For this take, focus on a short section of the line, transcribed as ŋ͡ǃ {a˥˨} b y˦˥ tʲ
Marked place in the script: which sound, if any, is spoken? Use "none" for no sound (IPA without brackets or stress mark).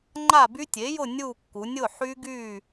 a˥˨